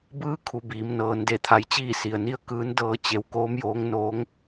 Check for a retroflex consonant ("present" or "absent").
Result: absent